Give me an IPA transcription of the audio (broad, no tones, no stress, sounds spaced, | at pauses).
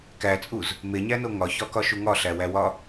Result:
k æ t͡sʼ u z | m e ɲ æ n o ŋ ɒ ç ɒ k ɒ ʃ u ŋ ɒ ɬ æ w æ w ɒ